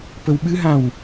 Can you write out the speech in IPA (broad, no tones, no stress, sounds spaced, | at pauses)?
p ə w ɓ ɨ ɦ ã w